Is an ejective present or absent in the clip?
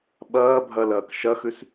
absent